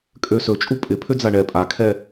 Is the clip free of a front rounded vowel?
no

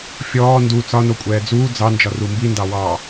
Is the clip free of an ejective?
no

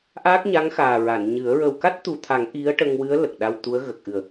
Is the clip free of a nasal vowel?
yes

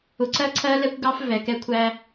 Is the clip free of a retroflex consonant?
yes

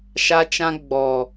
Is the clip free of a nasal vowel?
no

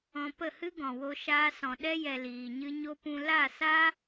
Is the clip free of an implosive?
no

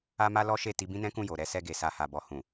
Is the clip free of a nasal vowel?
no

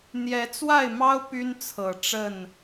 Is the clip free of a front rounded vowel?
no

